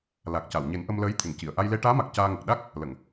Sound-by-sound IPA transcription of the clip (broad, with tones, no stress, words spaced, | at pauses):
la˨˩k̚ca˨˩˨wɲe˨˩˦n ʔə˧mləː˧˥j t̪ʰe˨˩˨ŋci˨˩˨ə̯ ʔa˧jle˧ ʈaː˧˥ma˨˩k̚ caː˧ŋə˨˩k̚ ɗa˦˥k̚ | lə˨˩˨ŋ